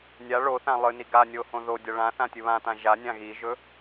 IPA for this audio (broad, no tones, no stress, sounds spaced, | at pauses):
nʲ a ɭ o θ ã lˠ ɨ n i ɡ a nʲ o h õ ð o dʲ ɐ ɭ ã θ ã tʲ ɨ β ã t ã ʒ a nʲ ã ɣ i ʒ ɵ